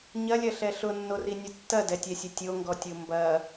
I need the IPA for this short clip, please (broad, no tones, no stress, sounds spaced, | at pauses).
ɲ ɐ lʲ ɐ ɬ ɛ ɬ ʊ nː o r i nʲ ʊ tː ɐ d ɛ tʲ ɛ sʲ ɐ tʲ o ŋ ɡ ɔ tʲ o m b ɐ